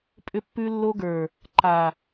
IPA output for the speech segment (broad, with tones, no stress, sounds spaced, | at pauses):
pʼ ʏ˧ pː ʉ˧ lː o˧ ɡ ə˞˨ | ǃ a˨